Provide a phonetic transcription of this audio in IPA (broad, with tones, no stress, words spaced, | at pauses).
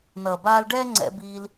nʌː˨baː˧lɖɛː˦ ŋ͡ǀɛ̰˧biː˧l